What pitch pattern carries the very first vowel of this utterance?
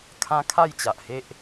high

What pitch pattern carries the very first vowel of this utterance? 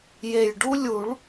low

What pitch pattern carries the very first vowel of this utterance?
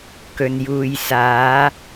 low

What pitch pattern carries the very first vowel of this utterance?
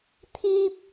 high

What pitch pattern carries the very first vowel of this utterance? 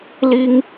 high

